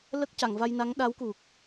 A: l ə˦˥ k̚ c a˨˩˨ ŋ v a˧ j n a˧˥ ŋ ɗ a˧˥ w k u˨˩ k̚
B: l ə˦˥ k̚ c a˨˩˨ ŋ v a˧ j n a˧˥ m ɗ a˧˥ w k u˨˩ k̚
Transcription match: A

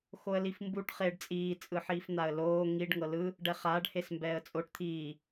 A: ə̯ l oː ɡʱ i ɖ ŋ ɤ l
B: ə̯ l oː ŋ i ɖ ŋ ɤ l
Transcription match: B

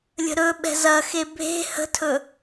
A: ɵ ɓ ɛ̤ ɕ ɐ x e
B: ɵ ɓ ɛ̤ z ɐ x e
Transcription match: B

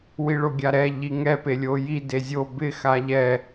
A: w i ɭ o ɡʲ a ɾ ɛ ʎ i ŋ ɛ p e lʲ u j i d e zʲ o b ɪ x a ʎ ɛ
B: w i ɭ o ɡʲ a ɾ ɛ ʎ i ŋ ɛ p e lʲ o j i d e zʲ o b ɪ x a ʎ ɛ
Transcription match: B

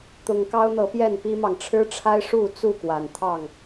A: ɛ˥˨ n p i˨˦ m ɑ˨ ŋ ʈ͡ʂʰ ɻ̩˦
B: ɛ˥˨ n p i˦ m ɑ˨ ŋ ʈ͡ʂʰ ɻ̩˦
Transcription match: B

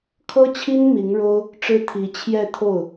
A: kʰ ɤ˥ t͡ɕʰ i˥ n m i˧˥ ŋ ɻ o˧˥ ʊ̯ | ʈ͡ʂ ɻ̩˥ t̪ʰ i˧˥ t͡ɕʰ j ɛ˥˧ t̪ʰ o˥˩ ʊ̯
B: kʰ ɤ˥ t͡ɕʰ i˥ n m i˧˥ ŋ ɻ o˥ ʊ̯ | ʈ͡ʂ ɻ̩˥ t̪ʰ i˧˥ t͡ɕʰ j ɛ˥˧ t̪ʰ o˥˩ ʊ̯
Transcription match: B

